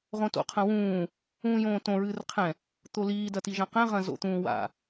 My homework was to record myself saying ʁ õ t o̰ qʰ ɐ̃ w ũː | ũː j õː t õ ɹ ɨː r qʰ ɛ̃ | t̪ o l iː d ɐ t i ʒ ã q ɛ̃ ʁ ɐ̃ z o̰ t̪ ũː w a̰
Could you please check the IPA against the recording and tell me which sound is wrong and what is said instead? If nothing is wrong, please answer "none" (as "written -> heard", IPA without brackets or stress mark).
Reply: none